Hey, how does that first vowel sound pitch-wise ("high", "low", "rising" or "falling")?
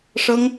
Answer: high